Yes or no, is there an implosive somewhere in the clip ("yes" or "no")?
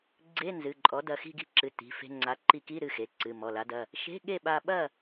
yes